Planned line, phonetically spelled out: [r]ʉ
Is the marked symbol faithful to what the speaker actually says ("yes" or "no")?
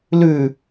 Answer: no